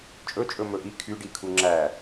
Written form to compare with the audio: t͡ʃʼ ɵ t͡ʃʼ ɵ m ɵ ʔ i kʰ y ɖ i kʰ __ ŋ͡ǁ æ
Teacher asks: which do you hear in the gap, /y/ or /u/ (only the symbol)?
u